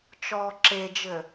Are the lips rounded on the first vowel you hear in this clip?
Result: yes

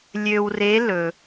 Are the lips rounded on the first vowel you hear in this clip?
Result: yes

